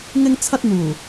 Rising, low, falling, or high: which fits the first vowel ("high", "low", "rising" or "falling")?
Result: high